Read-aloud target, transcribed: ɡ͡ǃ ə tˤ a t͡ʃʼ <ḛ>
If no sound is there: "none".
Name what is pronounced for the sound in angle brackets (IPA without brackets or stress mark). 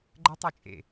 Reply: ḛ